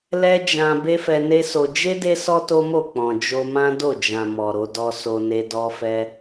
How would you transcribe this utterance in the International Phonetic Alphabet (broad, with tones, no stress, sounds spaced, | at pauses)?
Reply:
l ɛ˦ d͡ʒ ã˧ b e˦ f ɛ˧ n e˦ s o˧ d͡ʒ e˦ d e˦ s ɔ˦ t o˦ m o˦˨ k͡p ɔ̃˨ d͡ʒ o˧ m ã˦ d o˦˨ d͡ʒ ã˨ m ɔ˨ ɾ o˧ d ɔ˧ s o˧ n e˧ d ɔ˧ f ɛ˧